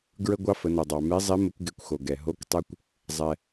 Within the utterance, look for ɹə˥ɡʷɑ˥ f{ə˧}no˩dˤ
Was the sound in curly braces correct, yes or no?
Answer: no